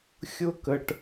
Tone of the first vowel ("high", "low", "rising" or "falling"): high